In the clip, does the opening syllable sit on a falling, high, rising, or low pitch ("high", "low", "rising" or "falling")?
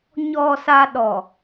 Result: low